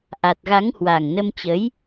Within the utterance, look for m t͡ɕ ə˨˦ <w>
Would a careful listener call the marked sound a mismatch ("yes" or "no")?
yes